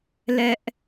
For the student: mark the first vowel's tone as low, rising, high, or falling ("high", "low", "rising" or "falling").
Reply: high